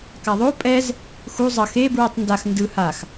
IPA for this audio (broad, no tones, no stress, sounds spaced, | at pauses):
k a ðˤ o pʼ ɛ z | x u zˤ ʌ x e b ɹ i tˤ n d a x n d ɯ h a x